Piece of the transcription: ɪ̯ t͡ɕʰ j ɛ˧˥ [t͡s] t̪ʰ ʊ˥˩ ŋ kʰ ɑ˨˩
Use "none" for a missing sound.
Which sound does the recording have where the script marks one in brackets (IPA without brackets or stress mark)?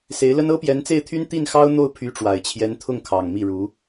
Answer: n